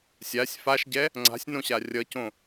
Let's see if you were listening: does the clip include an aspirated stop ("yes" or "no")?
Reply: no